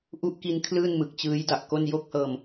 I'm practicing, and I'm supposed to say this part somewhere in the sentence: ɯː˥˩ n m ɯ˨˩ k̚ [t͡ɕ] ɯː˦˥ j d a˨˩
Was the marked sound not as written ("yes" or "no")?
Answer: no